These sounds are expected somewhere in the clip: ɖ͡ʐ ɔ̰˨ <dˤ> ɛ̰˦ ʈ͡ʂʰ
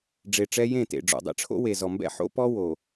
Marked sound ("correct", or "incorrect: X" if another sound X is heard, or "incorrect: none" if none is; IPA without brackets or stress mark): correct